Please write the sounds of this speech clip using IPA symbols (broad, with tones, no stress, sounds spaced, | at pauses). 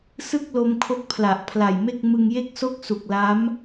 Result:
s ɯ˥˩ k̚ l o˧ m kʰ o˦˥ k̚ pʰ l a˨˩ ʔ pʰ l a˨˩ j m e˥˩ k̚ m ɯ˧ ŋ j e˥˩ k̚ s o˥˩ k̚ s u˨˩ k̚ l a˦˥ m